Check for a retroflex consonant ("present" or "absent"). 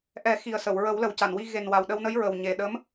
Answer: absent